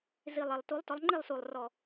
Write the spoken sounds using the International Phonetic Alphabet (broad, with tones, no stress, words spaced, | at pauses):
zi˨˩lˠ ɛ˨˩lˠtu˨˦lˠ tɔ˨˦lˠŋ͡ǃi˥˨lˠsu˨˩lˠ rɔ˨˩